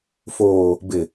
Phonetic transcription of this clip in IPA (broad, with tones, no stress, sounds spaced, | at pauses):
f oː˨ | b ɪ˨